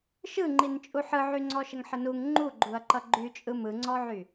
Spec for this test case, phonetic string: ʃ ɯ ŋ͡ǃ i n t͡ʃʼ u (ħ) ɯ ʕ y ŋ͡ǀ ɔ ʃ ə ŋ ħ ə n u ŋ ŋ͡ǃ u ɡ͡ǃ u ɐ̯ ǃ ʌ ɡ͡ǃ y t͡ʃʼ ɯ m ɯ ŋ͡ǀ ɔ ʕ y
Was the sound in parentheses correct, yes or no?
yes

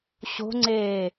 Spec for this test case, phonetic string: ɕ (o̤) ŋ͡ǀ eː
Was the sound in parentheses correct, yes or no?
yes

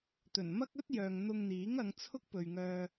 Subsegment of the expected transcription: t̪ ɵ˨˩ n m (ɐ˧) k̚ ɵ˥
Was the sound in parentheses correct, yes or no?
no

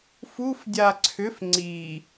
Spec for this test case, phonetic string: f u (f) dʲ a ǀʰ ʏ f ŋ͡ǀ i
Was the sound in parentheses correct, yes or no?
yes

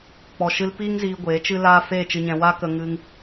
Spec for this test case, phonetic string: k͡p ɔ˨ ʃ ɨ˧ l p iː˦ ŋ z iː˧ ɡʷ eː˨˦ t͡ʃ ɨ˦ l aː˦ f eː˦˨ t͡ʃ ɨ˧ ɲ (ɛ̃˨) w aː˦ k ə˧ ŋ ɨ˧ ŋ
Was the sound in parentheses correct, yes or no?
no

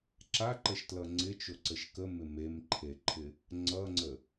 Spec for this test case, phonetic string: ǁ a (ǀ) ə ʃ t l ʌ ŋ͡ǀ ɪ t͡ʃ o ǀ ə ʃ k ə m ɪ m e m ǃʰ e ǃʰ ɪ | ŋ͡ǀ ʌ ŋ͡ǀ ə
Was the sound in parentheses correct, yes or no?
no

